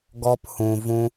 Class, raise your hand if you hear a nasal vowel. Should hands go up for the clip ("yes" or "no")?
yes